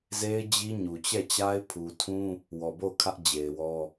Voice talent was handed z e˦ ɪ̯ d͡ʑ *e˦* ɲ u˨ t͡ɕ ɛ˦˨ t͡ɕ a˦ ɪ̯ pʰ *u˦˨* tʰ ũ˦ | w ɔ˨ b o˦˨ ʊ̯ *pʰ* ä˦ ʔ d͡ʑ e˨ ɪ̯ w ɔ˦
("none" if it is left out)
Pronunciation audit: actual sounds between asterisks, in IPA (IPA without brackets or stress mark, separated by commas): i˦, u˨, kʰ